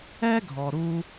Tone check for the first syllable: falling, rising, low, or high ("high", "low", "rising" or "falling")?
high